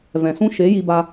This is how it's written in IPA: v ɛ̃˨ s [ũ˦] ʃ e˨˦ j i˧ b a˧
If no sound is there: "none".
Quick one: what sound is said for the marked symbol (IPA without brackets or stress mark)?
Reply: ũ˦